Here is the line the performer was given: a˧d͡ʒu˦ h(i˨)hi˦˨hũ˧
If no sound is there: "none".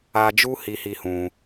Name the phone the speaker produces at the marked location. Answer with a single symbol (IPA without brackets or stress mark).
i˦